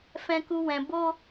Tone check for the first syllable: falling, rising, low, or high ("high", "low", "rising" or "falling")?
high